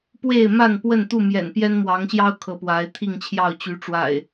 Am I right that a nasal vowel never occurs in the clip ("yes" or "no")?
yes